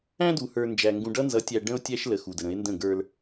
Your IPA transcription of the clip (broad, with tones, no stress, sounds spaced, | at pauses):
æ̃˦ d u˨ h ə˞˨ n d͡ʒ æ˨ ŋ ɡ ũ˨ ɖ ʌ˦ n z ʌ˨˦ tʲ æ˨ ɖ ə̃˦ o̯ tʲ æ˦ ʃ l ə˨ x u˨ d ə˨ ɾ ə̃˨˦ e̯ n d ə̃˦˨ ɡ ə˞˦ l